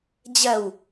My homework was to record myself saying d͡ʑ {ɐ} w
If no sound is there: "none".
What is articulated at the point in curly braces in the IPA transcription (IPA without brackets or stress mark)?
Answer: ɐ